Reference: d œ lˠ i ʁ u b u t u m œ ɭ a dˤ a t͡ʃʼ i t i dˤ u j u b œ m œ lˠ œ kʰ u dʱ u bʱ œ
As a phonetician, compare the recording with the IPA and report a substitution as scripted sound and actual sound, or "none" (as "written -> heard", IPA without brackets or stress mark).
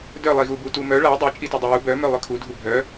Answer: ʁ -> ɣ